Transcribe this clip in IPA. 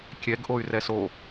kʲ ɛ ɡ ʔ o y̯ r ɛ s o

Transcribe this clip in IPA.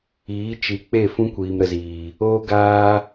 iː˨˦ t͡ʃ i˨˦ k͡p e˦˨ f ũ˦ kʷ iː˨ m ɾ ə˨ z iː˨ | oː˦ ɡ aː˦

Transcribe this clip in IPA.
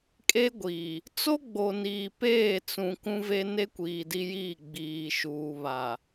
kʼ e˦ ɡʷ iː˨ | t͡s o˦ ɡ͡b o˨ n iː˨ p eː˦˨ t͡s ũ˨ k ũ˦ v e˦ n e˦ kʷ iː˨ d i˦ j iː˦˨ ɡ͡b iː˨ ʃ uː˨ β a˨

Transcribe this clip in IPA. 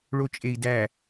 ɭ o t͡ʃʼ e i̯ d æ

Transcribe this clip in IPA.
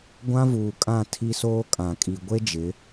ɡʷ ã˦ v uː˨ kʼ ã˦˨ tʰ i˦ s oː˦ kʼ ã˨ kʼ i˨ ɡʷ e˦ d͡ʒ ɪ˨˦

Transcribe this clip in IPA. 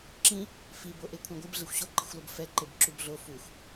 ǁ ĩ | f i b o ʔ e kʷʰ ɛ̃ ɡʷ ɯ b ɮ e xʷ ɕ o ǃ i̤ xʷ l o b f ɛ ǃ e b ǁ u b ɮ o f u xʷ

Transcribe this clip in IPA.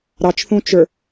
ɾ ɑ t͡ʃ θ ũ t͡ʃ ə˞

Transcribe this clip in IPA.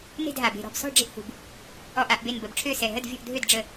n e̤˥˩ d ɦ a˩ b e̤˧˩ ɾ ɔ̤˧˩ b s ɔ̤˥˩ ɖ͡ʐ e̤˥˩ ʔ h ṳ˩ b | ɔ˧˩ ʔ a˥˩ ʔ b e˧˩ n b ə˧˩ b ʈ͡ʂʰ ø˥˩ s ɛ˧˩ ɦ ə˥˩ d vʲ ɔ̤˥˩ ʔ dʱ ø˥˩ d ɖ͡ʐ ə˥˩

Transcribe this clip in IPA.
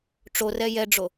ʈ͡ʂ o r ɛ j ɛ ɖ͡ʐ o

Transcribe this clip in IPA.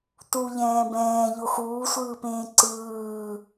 t u ʎ ɛ̃ː b ɛ̃ː ʎ o x uː sʷ ɯː p ẽː ǀ ɯː

